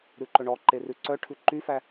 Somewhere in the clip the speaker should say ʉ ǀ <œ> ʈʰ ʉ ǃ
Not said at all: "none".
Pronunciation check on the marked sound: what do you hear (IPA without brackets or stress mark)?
œ